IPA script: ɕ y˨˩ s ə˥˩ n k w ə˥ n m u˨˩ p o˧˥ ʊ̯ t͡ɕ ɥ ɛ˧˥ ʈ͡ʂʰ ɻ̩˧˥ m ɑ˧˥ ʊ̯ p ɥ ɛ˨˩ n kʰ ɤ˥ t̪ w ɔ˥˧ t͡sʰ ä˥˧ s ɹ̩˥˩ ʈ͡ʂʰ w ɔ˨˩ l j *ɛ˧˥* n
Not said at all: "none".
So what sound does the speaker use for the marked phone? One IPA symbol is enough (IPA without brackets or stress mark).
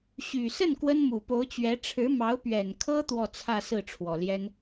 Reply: ɛ˥